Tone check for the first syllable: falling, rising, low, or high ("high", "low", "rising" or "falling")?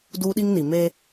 high